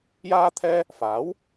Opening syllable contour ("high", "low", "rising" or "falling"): high